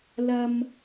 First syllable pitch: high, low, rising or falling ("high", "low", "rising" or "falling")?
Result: high